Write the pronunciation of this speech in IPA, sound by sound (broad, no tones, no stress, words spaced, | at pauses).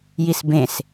jisbẽs